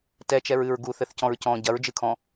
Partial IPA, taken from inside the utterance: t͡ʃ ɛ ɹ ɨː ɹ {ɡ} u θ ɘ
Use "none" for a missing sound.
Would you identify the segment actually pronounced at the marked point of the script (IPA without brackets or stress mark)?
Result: ɡ